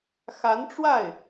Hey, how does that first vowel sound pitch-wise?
rising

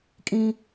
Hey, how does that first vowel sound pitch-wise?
high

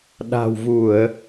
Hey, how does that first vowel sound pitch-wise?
low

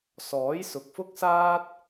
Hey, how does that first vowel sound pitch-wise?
rising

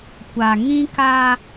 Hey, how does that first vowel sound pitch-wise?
low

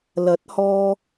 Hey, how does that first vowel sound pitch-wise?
rising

